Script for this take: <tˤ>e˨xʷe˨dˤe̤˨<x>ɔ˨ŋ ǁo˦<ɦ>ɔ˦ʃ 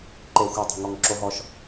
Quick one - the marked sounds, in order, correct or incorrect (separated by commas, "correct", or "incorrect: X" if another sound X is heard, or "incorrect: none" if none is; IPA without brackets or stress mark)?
incorrect: ǃ, incorrect: ŋ, correct